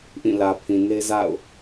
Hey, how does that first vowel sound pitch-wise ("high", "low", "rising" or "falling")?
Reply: falling